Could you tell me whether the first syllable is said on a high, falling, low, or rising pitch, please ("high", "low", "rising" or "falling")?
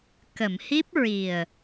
low